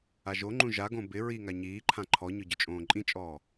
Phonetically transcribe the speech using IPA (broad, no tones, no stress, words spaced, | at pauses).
aʒoŋ͡ǃũ ʒaɡõ bɪ ɹiŋa ɲiːǃʰã ǃʰɔɲʊ ɟʊt͡ʃʼõːǃʼĩt͡ʃʼɔː